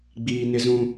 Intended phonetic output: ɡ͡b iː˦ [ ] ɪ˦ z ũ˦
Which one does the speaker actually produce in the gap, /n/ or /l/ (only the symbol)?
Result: n